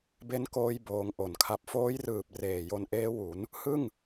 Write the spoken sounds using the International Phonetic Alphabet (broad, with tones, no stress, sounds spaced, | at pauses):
b e˦˥ n k oː˧ j b oː˧ ŋ ʔ o˨˩ n kʰ a˨˩ p̚ f oː˦˥ j r ɯː˨˩ p̚ r eː˨˩ j o˧ n ʔ eː˦˥ w u˩˦ n | h ɯ˥˩ ŋ